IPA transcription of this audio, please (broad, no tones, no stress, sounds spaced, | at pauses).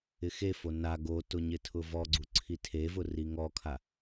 ɪ x e f o n a ɡ o t ʊ ɲ ɪ tʰ ʊ v ɔ ɡ͡ǀ u ǀʰ i tʰ e v ʊ r i ŋ ɔ kʰ a